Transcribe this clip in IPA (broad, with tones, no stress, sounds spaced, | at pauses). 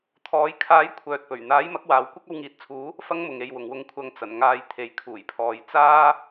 t̪ʰ ɔː˨˧ j kʰ aː˨˥ j kʷʰ œː˨ t̚ p ɵ˨˩ ɥ n̪ aː˨˥ j m ɐ˨˥ k̚ w aː˨˧ w kʷ ɐ˥ k̚ ɐ˧ w ŋ iː˨˥ t̚ t͡sʰ uː˨˥ | f ɐ˥ ŋ m ʊ˨ ŋ e˨˧ j w ʊ˨ ŋ w ʊ˧ ŋ kʷʰ ɐ˧ ŋ t͡s ɐ˨˩ n ŋ aː˨ j t̪ʰ e˨ j kʰ uː˨˩ j pʰ ɔː˨ j t͡s aː˥